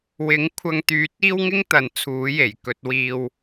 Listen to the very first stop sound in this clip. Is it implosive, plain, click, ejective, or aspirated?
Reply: aspirated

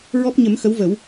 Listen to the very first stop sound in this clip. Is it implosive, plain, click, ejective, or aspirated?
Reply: plain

